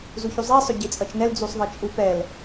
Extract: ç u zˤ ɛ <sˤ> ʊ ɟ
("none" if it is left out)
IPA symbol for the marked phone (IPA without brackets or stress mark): sˤ